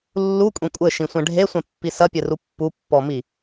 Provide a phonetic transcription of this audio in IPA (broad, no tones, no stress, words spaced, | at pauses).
lːukʷʼẽ kʷʼɘʃĩsʷɛ̃ ɖʱesʷɛ̃pːi sɐpʲɘru pːupːɔmi